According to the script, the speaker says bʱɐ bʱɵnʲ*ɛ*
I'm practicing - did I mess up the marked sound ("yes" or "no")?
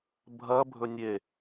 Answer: yes